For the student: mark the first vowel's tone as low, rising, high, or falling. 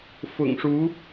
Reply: low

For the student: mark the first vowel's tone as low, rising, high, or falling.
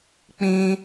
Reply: high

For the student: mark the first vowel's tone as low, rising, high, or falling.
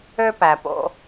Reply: high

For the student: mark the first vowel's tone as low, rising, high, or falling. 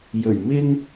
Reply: low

